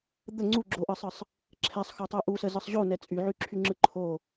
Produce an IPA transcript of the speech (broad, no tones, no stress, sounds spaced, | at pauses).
d̪ ə ŋ͡ǀ u ɡ͡ǁ o ʔ ɯ sˤ ɯ sˤ | ǁʰ ɛ sˤ x o tˤ u ʔ u s ə z ɯ sˤ ʑ o n ɛ t͡sʼ y ʕ y ǁʰ y ŋ͡ǁ ɯ ǃʰ o